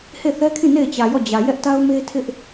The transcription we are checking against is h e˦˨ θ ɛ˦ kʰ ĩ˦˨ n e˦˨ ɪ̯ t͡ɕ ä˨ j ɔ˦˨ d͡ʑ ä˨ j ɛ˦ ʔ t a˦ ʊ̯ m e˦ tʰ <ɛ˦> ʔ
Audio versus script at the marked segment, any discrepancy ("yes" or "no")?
yes